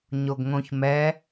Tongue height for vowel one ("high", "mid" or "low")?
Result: mid